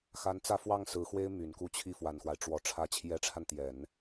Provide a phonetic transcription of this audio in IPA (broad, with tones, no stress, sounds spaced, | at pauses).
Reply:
x a˧˥ n t͡s ä˥˧ f w ɑ˥˩ ŋ s ɹ̩˧˥ x w e˥ ɪ̯ m y˨˩ n k u˥˧ t͡ɕʰ i˥˩ f w a˨˩ n x w a˦ ɪ̯ ʈ͡ʂ w ɔ˨˩ ʈ͡ʂʰ ä˧˥ t͡ɕʰ j ɛ˧˥ ʈ͡ʂʰ a˧ n t̪ j ɛ˨˩˦ n